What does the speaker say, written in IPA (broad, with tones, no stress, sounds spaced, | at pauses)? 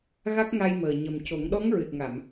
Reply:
ɣ a˦˥ k̚ ŋ a˧ j m əː˨˩ ɲ ə˨˩ m c o˨˩˦ ŋ ɗ ɔ˧˥ ŋ ɹ ɨ˨˩ t̚ ŋ a˨˩˨ m